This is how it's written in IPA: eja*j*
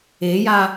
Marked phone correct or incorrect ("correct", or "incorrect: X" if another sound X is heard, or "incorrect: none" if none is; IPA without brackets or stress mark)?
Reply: incorrect: none